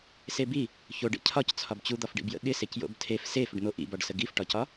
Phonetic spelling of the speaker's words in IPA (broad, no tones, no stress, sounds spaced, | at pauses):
s e b i | ç o ɖ ḛ cʰ ɒ c t͡sʰ ɒ b t͡ɕ u d̪ ɒ f ɖ ḭ b j ə̰ ɠ ɪ s e c j o̰ b tʰ e f s e f ʏ ɖ n̪ o ʔ ḭ b ɒ ɖ s ə ɡ i f ʈ ɒ c ɒ